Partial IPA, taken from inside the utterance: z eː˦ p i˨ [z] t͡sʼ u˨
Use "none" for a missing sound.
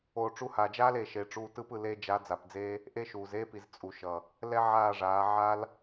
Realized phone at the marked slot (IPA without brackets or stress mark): z